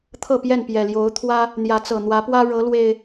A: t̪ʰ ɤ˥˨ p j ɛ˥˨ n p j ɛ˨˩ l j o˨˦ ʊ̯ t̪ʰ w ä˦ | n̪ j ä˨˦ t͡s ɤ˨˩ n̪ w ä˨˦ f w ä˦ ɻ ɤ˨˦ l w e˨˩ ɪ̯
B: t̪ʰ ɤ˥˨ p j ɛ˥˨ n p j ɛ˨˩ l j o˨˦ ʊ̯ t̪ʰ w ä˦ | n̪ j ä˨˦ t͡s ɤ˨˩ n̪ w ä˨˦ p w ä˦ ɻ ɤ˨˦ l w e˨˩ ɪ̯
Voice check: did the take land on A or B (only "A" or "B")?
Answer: B